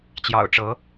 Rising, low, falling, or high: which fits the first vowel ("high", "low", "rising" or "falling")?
low